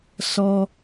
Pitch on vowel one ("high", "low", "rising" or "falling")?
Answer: high